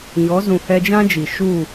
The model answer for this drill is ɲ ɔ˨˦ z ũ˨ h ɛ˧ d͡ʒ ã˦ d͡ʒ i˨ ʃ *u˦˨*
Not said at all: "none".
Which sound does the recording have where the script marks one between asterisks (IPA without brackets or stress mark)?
u˦˨